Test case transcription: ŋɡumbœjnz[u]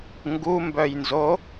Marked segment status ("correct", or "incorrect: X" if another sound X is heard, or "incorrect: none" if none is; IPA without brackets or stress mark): incorrect: o